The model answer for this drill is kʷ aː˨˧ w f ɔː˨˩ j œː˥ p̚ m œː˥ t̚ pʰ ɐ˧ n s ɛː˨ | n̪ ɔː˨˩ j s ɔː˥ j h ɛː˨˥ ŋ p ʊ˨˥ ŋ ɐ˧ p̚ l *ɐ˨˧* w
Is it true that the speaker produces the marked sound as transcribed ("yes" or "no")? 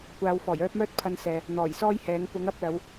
yes